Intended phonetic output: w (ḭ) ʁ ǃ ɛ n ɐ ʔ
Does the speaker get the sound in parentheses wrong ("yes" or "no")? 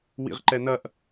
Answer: no